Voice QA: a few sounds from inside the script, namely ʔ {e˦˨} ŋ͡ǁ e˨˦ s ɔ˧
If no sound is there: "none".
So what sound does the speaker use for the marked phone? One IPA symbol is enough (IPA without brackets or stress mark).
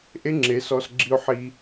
e˦